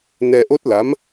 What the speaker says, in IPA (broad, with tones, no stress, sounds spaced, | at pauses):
n ɛ˧ ʔ o˦˥ t̚ l a˧˥ m